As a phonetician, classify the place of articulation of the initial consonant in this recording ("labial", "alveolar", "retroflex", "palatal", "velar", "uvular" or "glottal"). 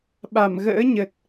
labial